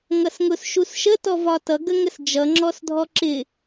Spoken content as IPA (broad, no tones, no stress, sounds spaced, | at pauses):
ŋ ʌ s ŋ ʊ s ʃ u s ʃ ə t ɔ v ɒ t ʌ ɡ ə ŋ ə s d͡ʒ ʌ ŋ͡ǁ ɔ s dʱ ɔ ǁ ɪ